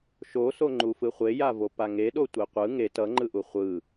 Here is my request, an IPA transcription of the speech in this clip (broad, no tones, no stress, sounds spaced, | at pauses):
ʃ o s o ŋ͡ǃ u f ɯ χʷ e j a v o p a ŋ e ɗ o tʷ e qʷ ɯ ŋ e t ʌ ŋ͡ǃ ɯ ʔ u χʷ ɯ